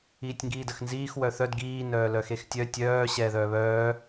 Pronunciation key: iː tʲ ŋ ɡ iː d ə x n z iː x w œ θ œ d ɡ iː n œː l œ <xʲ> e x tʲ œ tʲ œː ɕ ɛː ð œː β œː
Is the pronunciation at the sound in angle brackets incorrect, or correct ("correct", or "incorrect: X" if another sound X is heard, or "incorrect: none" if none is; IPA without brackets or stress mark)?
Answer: incorrect: x